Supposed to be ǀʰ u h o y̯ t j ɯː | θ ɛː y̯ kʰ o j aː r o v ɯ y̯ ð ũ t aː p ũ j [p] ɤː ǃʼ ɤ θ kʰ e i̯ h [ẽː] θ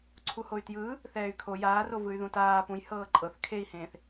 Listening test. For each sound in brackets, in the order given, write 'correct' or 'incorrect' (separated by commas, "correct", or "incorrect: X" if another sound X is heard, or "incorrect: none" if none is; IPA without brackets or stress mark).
incorrect: h, correct